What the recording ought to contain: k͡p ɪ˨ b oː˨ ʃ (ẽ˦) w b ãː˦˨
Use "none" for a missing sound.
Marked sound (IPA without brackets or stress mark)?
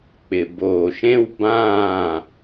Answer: ẽ˦